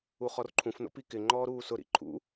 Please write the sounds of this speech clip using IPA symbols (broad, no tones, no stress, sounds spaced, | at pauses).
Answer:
u χ ɔ r ǃʰ ũ f n o̰ p i k ɪ ŋ͡ǃ ɔː ɾ uː s ʊ ɾ ḭ ǃʰ ṵ